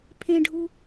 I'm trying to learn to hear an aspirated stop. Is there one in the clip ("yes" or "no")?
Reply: yes